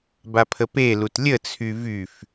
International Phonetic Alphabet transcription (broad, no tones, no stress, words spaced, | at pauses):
bapʰəpelut lʲət͡sʰy vyf